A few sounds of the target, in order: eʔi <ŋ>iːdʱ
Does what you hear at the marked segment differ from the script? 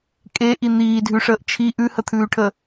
yes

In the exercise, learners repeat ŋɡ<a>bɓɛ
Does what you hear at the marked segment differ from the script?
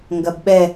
yes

